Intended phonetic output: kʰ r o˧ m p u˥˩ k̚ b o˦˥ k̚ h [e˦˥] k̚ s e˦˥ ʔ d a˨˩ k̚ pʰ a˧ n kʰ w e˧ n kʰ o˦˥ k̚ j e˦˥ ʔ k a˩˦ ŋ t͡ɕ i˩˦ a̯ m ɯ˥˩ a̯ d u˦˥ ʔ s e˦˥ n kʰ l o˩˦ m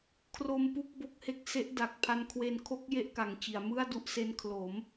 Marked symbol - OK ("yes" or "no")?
yes